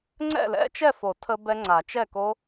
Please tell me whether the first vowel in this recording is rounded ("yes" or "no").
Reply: no